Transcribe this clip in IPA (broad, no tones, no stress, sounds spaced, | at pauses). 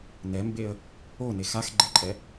n ɛ m b e ə̯ | o n e x a x ɡ͡ǃ e ǃʼ ɛ